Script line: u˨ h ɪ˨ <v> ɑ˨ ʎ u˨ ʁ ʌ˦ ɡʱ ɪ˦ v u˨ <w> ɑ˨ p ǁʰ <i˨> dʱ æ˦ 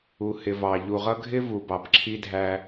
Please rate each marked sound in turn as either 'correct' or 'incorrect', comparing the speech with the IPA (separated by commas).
correct, incorrect, incorrect